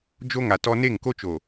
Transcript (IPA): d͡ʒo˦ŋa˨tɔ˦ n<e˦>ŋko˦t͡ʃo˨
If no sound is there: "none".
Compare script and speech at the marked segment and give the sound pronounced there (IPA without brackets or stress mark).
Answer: e˦˨